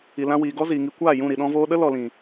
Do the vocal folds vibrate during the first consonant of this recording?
yes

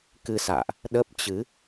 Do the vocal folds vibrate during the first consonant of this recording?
no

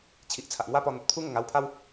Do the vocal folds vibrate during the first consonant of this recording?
no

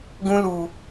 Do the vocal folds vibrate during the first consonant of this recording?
yes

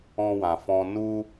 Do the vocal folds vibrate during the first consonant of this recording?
yes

